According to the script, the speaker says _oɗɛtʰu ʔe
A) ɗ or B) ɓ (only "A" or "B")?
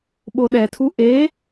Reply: B